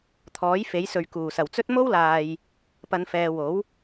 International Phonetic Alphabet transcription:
t̪ʰɔː˨˥j fe˨˥jsɵ˨ɥ kuː˨˩sɐ˨˩wt͡sɵ˥t̚ mo˥wlaː˨j | pɐ˨˧nfɛː˨wo˨˥w

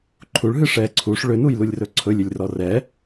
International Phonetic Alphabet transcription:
ǃʰuɭɦɨ ʂɛ ǀʰuʂ ɭʏnujlulʲrɵ ǀʰɵlʲʏlʲrɔ rɛ

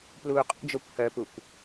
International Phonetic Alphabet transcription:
pluːqʼṵd͡ʒokʷ hœpukʷ

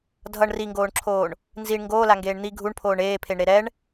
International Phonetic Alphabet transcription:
dʱʌɳ riŋɡoːɳǁʰoːɳ | nziɳ ŋɡoːlaŋɡeːɳ n̪i ɡʱuɳpʰoːɳ eːpʰeɳɾe ɾɛɳ

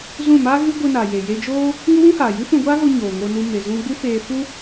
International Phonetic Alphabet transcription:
zũ˦˨ma˦ɣɨ˦ ɡʷɨ˧na˨je˨ je˧d͡ʒoː˦ | ŋu˦wũ˦haː˨ jɨ˦fũ˧ɡʷaː˦ɣo˧ ɲoː˨ŋo˧nu˧me˨ zũ˧ɡ͡bu˦feː˧ fu˦

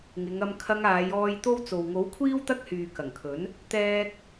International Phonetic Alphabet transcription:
ŋɪ˨˧ŋɐ˧m kʰɐ˧ŋaː˨˧jɔː˧j t̪o˥wt͡so˨w ŋo˨˥wkʷʰiː˥w t̪ɐ˥k̚hyː˨kɐ˨˩ŋkʰɵ˨˥n | t̪ɛː˥k̚

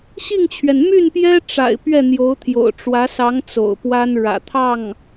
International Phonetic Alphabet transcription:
ɕi˥˩ŋt͡ɕʰɥɛ˩n my˥˩npjɛ˥ ʈ͡ʂa̰˨˩ɪ̯ pɥɛ˥˩n̪jo˧˥ʊ̯t̪ʰjo̰˨˩ʊ̯ ʈ͡ʂwä˧˥sɑ˧˥ŋ t͡so̰˨˩ʊ̯pwa˥nɻä̰˨˩ t̪ʰɑ˥˩ŋ

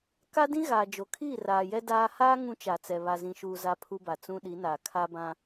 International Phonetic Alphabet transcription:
ka˦dĩ˦ ɣaː˨d͡ʒo˨kʰiː˦˨ raː˨jɛ˦ daː˦ haː˦ ŋũ˦t͡ʃa˨t͡sɛ˨ βa˨zĩ˨ʃuː˨ za˦pʰu˦ba˨ t͡sũ˦ ɗi˨˦naː˨ kʰa˦bã˦

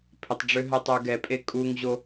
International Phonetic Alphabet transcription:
pʰɪtˤɖ͡ʐø ɦətˤuɡɛpʼe kʼuŋʑo

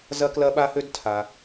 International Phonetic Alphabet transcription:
zɐ˦klɐ˦ɓa˦hø˦d tʰa˨

